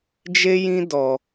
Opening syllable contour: high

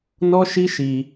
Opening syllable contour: high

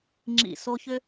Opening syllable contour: low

